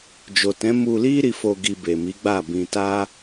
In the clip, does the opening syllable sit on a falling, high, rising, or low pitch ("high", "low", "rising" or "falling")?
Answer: low